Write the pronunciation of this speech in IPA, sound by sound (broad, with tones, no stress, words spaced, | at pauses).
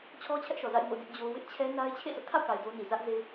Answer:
t͡ɕʰɔ˦t͡ɕʰɛ˦ʔʃɔ˨za̰˦˨ɪ̯ ŋo̰˦˨dɪ˦ʔd͡ʑo˦ wɪ˦ʔt͡ɕʰɛ˦na˦ɪ̯ t͡ɕʰḛ˦˨sʰʊ˦ʔkʰa̰˦˨ʊ̯ka˨ɪ̯ do˦ ni˨zä˦ʔze˦